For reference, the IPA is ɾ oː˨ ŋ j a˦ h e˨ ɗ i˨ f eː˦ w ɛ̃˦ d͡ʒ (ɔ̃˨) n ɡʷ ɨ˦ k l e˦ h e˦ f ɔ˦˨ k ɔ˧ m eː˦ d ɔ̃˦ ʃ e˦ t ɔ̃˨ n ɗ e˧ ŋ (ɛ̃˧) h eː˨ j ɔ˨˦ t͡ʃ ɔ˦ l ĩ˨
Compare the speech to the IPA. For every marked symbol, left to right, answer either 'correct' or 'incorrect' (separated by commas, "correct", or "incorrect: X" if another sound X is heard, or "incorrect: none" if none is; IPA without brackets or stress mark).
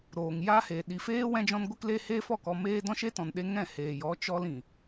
incorrect: ɔ̃˦, incorrect: ɛ̃˦˨